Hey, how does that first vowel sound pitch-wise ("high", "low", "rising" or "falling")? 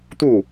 falling